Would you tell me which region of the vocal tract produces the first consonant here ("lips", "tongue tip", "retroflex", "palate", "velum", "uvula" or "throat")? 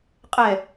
uvula